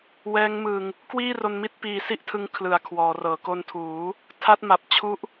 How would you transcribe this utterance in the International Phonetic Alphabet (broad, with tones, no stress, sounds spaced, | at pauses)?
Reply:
w ɛː˦˥ ŋ m ɯ˧ ŋ | k w iː˥˩ r o˧ n m i˥˩ t̚ p iː˧ s i˥˩ ʔ tʰ ɯ˦˥ ŋ kʰ l ɯ˨˩ a̯ kʰ w ɔː˩˦ r ɤː˩˦ k o˧ n tʰ uː˩˦ | tʰ a˦˥ t̚ m a˨˩ p̚ t͡ɕʰ u˦˥ ʔ